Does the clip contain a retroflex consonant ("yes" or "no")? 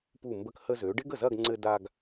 yes